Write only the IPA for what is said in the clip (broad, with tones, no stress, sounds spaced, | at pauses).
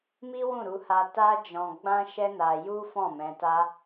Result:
m i˦ w ũ˦˨ ɾ u˧ h a˧ t a˦ d͡ʒ ɔ̃˧ ɡ͡b ã˦ ʃ ɛ˦ n a˧ j u˦ f ɔ̃˦˨ m ɛ̃˧ t a˦